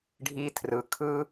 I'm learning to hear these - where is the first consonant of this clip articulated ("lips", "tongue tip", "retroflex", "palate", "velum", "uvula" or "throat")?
retroflex